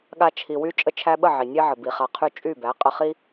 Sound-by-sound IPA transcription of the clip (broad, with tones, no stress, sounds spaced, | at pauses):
ɠ a˧ t͡ʃʰ i˨ w y˧ t͡ʃʼ ə˧ t͡ʃʰ æ˧ ɓ ə˦˨ ʕ i˨ nʲ e˦ ʕ ə˨ b i˨ χ a˨ qʰ y˧ t͡ʃʼ y˦˨ b æ˨˦ qʼ ə˧ χ i˦